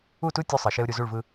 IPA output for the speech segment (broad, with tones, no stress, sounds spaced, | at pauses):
u˦˨ t u˦ tʲ u˦ sˤ ɤ˨ ʃ e˦ ʊ̯ ɾʲ u˨ z u˦˨ ɭ v ɯ˦